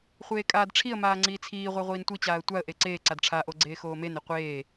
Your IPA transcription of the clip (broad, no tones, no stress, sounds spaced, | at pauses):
χʷ eː kʼ aː d ʈ͡ʂʰ i ə̯ m aː ŋ͡ǀ iː t͡sʰ iː ʁʷ æ ʁʷ iː n tʷ i t͡ɕ aː ə̯ tʷ a ə̯ ʔ e ǀ eː ǀ a d ʈ͡ʂʰ a ʔ o ɡ͡ǀ eː x oː m e n e qʷ eː